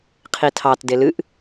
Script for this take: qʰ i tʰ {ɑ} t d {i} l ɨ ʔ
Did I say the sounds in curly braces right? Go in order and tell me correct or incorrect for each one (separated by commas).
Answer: correct, incorrect